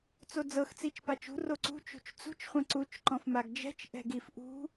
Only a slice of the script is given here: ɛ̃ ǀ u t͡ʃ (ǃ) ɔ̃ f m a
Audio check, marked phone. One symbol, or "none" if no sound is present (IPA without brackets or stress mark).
ǃ